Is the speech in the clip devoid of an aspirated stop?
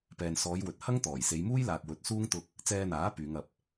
yes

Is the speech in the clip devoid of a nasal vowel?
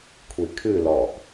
yes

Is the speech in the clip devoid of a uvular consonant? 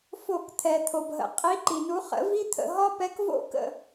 no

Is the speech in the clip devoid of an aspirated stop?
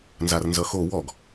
yes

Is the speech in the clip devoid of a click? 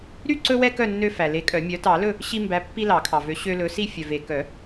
no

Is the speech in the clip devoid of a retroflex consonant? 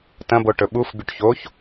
no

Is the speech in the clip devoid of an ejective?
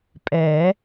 no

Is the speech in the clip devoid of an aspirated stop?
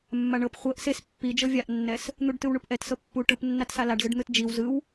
yes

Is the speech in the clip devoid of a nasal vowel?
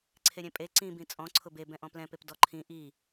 no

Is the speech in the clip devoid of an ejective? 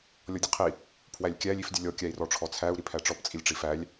no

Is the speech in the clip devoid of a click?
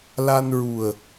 yes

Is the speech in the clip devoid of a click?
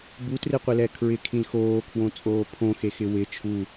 yes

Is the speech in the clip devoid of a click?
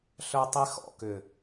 yes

